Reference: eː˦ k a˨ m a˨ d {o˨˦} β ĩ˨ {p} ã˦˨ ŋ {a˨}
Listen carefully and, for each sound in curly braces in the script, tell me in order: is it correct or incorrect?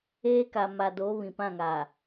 correct, correct, correct

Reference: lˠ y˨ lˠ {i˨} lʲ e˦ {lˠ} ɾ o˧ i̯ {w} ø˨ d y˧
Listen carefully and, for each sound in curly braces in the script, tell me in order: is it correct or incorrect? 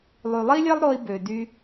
incorrect: i˦, correct, incorrect: b

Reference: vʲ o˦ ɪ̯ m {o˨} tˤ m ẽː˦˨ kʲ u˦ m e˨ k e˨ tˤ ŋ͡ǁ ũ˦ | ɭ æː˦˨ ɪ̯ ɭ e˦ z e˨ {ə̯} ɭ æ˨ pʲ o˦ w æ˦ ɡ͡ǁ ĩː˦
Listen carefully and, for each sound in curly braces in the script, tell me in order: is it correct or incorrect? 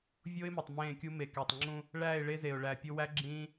correct, incorrect: ʊ̯

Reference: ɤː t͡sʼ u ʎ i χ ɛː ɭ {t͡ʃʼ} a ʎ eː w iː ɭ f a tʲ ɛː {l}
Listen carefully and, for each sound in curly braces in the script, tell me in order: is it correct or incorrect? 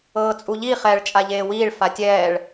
correct, incorrect: ɭ

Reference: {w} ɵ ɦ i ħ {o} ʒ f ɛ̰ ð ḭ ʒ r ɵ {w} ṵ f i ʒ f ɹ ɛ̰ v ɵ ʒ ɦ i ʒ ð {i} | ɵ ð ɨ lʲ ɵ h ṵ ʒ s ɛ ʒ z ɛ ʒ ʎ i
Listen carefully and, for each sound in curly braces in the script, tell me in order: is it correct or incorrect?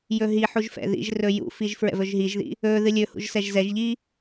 incorrect: j, incorrect: u, incorrect: j, incorrect: ḭ

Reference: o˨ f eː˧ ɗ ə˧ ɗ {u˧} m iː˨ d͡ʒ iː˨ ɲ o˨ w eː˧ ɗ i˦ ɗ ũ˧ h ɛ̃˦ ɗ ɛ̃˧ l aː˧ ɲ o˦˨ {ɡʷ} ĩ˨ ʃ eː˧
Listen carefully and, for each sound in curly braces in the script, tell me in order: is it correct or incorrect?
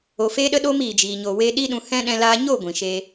incorrect: o˧, correct

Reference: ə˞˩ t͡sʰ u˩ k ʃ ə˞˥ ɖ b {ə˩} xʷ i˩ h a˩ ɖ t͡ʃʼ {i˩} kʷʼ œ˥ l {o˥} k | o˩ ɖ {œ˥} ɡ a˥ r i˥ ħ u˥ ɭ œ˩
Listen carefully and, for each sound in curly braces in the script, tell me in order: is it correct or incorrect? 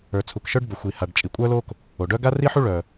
correct, correct, correct, correct

